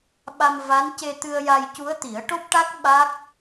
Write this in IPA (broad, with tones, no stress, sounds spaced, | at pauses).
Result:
ɓ a˧ m v a˧˥ n c e˧ t̪ ɨ˧ ə̯ j a˧ j c u˧˥ ə̯ t̪ i˨˩˦ ə̯ ʈ o˦˥ p̚ ʈ a˦˥ k̚ ɓ a˦˥ k̚